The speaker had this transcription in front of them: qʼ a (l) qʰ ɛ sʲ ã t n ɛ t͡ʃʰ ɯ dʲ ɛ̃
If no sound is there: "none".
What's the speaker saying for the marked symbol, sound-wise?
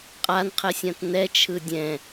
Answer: n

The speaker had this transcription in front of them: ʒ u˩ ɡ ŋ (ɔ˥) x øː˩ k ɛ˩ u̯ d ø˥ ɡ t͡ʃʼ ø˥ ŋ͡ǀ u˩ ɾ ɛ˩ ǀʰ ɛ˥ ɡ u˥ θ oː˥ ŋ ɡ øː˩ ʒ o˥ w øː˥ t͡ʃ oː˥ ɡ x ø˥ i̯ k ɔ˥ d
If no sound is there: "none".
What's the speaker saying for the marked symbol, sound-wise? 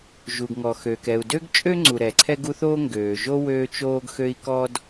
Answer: ɔ˩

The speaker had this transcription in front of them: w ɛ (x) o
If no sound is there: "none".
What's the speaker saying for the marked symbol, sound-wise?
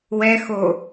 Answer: x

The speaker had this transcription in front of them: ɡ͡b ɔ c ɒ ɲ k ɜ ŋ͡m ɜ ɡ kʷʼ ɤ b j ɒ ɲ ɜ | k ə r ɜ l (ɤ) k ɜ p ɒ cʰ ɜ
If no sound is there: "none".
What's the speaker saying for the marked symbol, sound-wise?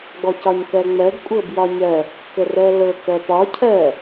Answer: ɤ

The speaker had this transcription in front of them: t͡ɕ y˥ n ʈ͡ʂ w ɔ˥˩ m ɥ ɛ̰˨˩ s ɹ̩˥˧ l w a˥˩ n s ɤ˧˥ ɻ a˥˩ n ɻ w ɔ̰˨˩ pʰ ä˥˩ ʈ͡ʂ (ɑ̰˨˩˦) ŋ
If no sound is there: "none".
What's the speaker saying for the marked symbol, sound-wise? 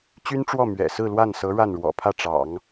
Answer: ɑ̰˨˩˦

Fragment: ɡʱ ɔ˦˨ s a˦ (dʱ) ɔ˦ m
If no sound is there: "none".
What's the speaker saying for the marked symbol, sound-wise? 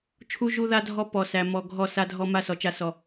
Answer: dʱ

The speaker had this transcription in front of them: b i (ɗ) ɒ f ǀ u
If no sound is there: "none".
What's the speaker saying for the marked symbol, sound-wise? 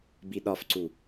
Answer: ɗ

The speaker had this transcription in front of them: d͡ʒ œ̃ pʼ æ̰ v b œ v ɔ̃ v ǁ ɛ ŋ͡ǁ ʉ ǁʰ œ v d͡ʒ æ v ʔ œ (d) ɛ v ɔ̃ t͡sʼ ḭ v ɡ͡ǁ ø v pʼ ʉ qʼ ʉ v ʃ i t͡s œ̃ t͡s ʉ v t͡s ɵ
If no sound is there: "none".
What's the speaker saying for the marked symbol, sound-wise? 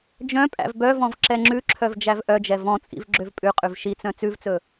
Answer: d͡ʒ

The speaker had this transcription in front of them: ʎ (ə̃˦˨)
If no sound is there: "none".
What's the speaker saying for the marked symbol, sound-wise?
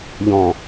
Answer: ɔ̃˦˨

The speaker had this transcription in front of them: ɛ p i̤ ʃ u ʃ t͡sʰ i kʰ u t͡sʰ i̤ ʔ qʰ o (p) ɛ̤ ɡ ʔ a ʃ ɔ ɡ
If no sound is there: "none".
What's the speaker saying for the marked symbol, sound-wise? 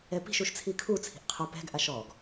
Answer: p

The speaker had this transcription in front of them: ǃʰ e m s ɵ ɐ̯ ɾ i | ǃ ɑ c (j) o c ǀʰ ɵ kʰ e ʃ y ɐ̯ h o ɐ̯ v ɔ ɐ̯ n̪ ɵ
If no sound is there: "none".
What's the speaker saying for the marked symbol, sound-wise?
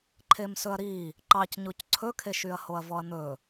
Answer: ɲ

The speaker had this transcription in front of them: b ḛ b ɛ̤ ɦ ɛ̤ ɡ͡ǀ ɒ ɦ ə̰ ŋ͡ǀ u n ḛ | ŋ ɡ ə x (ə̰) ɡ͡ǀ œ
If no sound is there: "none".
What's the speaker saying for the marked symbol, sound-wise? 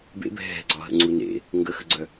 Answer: ə̰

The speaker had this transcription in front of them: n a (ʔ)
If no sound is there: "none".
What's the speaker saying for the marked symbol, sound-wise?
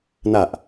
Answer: ʔ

